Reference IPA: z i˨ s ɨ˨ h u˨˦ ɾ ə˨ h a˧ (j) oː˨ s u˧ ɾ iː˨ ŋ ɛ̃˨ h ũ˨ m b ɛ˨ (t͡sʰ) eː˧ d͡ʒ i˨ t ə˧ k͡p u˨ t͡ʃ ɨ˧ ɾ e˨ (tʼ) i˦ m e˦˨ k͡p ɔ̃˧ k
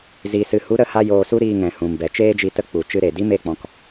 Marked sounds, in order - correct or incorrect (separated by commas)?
correct, incorrect, incorrect